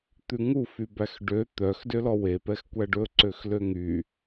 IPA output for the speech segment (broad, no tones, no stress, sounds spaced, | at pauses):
t̪ ʉ ŋ u f y b æ x ɖ ø t̪ œ x d ø l ɔ w e p ɛ x kʷ æ ɖ ɵ ǀ ø x l ø ŋ y